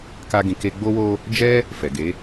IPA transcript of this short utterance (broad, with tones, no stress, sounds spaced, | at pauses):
k a˧ ɡ ĩ˨ k e˧ ɡ͡b o˧ w o˧ | d͡ʒ ɛ˦ | f ɛ˨ ɡ e˨˦